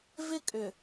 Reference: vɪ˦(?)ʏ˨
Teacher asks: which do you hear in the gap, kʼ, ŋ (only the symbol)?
kʼ